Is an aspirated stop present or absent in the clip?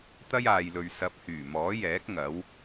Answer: absent